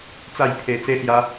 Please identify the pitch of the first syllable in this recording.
falling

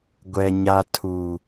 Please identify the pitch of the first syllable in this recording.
low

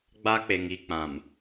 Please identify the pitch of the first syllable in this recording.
high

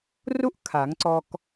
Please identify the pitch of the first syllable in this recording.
high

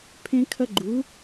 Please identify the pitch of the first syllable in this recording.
high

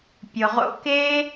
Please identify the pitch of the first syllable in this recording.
low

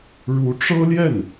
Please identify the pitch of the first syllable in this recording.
rising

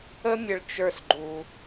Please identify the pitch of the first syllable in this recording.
high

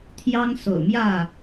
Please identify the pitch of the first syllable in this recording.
high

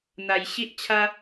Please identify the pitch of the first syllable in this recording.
low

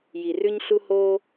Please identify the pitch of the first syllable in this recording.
low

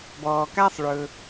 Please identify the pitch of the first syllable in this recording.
low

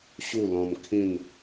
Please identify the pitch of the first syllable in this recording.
falling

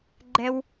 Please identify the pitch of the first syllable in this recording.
high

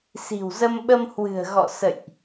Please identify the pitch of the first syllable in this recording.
low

